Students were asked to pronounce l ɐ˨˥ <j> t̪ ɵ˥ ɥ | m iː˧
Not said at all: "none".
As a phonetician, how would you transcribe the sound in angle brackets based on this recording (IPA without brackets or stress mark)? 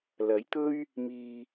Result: j